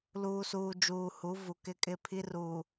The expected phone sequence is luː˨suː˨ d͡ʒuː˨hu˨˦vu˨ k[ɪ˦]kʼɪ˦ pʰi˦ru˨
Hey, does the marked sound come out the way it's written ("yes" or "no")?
yes